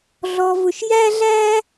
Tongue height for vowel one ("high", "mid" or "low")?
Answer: mid